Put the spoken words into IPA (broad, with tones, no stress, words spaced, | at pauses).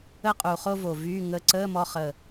ə˥˧qʼu˨˩χo˥˧ vo˨˩vyː˧˥˧ŋə˧˥˧ ǀəː˧˥˧mɔ˧χə˨˩